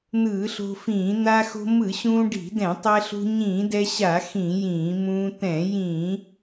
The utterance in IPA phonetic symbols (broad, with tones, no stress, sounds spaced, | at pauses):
n̪ ɯː˧˩˧ ɬ o̤˧ f ĩː˧˩˧ n̪ a˧ x o̤˧ m ɯ˧˩˧ ɕ ũː˧ ɖ i̤˧˩˧ d ɛ̃˧˩˧ tˤ ɛ˧ ɬ ṳ˧ ɲ ĩː˧˩˧ d ɛ˧ ɕ a˧˩˧ x ĩ˧˩˧ j ĩː˧˩˧ m ũː˧ t̪ ɛ̃˧˩˧ j ĩ˧˩˧